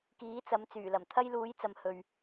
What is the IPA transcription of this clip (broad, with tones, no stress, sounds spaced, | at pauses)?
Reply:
k iː˨˥ t͡s ɐ˨˧ m t͡s yː˨˩ l ɐ˨˩ m t̪ʰ ɐ˥ j l uː˨˥ j t͡s ɐ˨ m h ɵ˨ ɥ